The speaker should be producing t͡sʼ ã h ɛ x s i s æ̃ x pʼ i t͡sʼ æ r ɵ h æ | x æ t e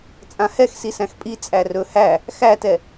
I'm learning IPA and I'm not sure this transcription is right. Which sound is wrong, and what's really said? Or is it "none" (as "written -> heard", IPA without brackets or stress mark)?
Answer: e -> ɛ